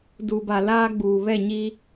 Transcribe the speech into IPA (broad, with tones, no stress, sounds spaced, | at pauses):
d u˨ b a˨ l aː˦ ɡ͡b uː˨ β ɛ˦˨ ɲ i˦